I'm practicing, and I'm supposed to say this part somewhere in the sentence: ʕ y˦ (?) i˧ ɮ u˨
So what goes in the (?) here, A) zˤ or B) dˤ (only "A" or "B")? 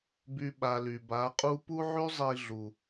A